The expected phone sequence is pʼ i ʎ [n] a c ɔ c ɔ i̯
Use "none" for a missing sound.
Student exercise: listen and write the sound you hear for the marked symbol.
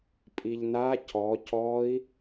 n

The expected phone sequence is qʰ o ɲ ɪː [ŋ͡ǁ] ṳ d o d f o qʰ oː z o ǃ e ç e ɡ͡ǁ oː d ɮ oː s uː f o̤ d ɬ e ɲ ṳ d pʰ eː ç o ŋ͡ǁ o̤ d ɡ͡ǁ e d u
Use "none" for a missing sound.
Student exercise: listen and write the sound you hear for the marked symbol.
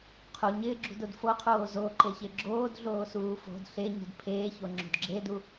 ɡ͡ǁ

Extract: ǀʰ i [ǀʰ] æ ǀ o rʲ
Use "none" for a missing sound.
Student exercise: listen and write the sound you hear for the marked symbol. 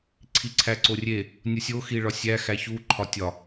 ǀʰ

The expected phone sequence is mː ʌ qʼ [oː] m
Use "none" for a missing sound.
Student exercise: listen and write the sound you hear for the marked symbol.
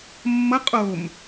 o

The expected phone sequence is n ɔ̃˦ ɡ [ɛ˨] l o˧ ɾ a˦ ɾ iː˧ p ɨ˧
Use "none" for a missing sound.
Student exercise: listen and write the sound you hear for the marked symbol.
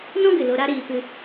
ɨ˨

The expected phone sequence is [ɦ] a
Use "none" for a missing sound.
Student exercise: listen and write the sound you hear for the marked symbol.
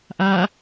ʔ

